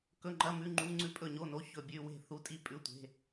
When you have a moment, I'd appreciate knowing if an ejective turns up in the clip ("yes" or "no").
yes